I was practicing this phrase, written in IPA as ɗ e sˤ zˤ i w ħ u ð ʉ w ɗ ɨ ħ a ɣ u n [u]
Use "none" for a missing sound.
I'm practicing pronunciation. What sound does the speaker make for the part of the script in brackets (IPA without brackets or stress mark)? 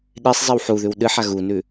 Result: ʉ